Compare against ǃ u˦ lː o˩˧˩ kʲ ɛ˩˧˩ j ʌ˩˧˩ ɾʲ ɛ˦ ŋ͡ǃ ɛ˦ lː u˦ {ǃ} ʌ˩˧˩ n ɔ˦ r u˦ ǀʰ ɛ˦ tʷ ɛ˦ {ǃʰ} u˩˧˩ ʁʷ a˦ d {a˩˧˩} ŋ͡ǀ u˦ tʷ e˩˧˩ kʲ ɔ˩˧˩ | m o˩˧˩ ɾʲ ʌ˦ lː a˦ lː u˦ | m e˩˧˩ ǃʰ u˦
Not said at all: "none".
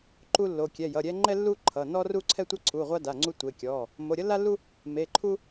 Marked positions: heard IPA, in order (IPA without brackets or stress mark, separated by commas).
ǃʰ, ǀʰ, a˩˧˩